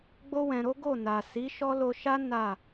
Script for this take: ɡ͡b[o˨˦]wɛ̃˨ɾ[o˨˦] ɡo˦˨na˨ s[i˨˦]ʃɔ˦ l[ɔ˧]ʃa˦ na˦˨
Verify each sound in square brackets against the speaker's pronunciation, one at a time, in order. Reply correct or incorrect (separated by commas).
incorrect, correct, correct, incorrect